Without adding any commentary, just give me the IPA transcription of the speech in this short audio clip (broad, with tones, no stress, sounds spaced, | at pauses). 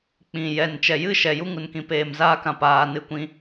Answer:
k͡p ĩ˨ j ɛ˨ n t͡ʃ ɛ˨ j ɨ˦ ʃ ɛ˨ j u˧ ŋ u˨ n k ĩ˨ p eː˨ m z aː˦ k ã˨ p aː˨ n ɨ˧ kʷ ĩ˧